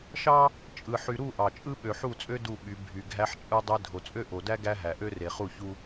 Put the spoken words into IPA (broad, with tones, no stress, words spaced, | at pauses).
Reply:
ʃɑ˦ | t͡ʃʼɯ˨ ħy˨ɾu˦˨ ʔɑ˨t͡ʃʼɯ˦ ɓø˨ħu˦˨t͡sʼø˦ du˦˨ɓy˨˦ bʱy˨ɡʱæ˦ħt͡ʃʼɯ˦ dˤe˦ dʱo˨t͡sʼø˦ʔo˨dæ˦ ɡæ˦ɦæ˨ ʔø˦re˨χu˦˨çu˦